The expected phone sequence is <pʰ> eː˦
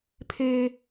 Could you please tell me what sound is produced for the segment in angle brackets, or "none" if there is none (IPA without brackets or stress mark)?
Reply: pʰ